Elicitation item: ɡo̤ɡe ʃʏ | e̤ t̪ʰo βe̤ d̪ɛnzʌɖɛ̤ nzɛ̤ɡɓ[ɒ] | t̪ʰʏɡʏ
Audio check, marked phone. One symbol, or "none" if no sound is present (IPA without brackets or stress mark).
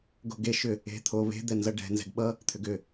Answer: ʌ